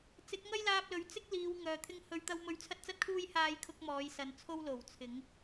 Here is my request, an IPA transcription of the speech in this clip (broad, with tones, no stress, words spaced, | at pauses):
t͡sɪ˨˥k̚ŋɐ˥jlaː˧p̚lɵ˨˥ɥ t͡sɪ˥k̚liː˨˧w ŋœː˨t̪ʰɪ˥ŋ hɵ˨˧ɥt̪ɐ˧wmɵ˧ɥ t͡sʰɐ˥t̚t͡sɐ˥t̚kʰuː˥j haː˥jkʰʊ˥k̚ mɔː˨˧jsɐ˨nt͡sʰo˥w lo˨˩wt͡sʰɪ˨˥ŋ